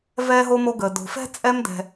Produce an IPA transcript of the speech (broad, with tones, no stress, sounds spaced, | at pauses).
v ɛː˥ ɦ o˥ m o˦ ɡ əː˩ d o̤˩ f ɛ̤˥ t͡sʼ ɛ˦ m d ɛ̤˩